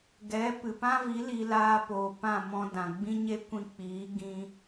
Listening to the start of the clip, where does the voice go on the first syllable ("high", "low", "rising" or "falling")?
rising